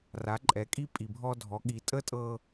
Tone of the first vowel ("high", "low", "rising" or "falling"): rising